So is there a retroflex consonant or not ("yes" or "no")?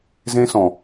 no